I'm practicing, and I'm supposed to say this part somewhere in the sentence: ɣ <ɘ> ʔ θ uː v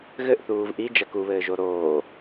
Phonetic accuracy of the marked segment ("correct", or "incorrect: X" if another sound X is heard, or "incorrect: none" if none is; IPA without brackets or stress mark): correct